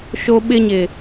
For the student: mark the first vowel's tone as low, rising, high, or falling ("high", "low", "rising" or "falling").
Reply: high